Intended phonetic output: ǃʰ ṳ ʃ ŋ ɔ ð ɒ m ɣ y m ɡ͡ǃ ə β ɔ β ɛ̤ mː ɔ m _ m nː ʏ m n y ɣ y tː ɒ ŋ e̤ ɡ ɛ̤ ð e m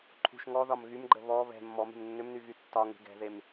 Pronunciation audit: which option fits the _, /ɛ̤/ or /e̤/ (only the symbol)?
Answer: e̤